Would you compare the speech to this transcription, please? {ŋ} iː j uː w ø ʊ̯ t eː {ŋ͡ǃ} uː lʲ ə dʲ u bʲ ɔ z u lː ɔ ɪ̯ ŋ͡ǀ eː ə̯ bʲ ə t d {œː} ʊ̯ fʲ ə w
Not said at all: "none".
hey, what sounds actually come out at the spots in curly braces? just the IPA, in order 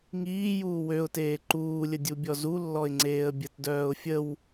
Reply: ŋ, ǃ, œː

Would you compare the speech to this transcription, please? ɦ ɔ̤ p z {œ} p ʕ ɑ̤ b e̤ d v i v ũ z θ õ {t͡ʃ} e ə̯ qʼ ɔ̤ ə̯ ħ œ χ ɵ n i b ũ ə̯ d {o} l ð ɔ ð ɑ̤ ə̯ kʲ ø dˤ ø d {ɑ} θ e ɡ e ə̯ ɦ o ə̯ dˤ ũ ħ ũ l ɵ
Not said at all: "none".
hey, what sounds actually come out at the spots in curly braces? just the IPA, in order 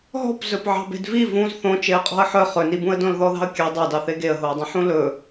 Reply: ɵ, t͡ʃ, õ, ɑ

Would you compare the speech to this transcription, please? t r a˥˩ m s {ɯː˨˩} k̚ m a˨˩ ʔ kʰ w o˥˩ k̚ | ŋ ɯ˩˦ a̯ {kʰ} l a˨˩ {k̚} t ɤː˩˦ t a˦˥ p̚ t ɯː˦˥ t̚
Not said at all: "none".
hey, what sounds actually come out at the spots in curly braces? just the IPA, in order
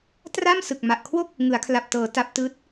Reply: ɯ˨˩, kʰ, p̚

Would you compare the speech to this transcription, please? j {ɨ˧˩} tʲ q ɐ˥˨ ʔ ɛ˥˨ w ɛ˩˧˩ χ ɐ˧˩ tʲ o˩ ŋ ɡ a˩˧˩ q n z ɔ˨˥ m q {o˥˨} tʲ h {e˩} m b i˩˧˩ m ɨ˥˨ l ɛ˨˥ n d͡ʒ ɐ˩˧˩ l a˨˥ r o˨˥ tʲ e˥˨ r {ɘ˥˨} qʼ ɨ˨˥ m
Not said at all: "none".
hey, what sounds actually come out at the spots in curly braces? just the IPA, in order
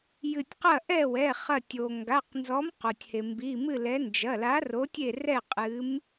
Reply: ɨ˧˩, o˩, e˩, ɛ˥˨

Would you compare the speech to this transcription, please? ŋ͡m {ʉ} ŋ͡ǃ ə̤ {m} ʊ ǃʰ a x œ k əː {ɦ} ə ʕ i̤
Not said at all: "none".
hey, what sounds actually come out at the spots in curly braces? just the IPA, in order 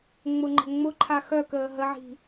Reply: ʊ, ŋ͡m, ɦ

